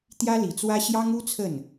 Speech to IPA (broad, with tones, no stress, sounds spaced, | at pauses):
t̪ j ä˥ l i˨˩ t͡s w ä˥ ɕ j ɑ˥ ŋ u˥ t͡sʰ ə˥˩ n